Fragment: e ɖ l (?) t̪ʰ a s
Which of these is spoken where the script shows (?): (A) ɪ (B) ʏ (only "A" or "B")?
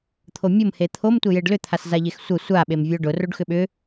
B